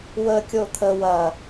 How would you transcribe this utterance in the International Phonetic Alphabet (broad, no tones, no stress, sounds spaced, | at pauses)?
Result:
w ə kʲ o t̪ʰ ə w ɐ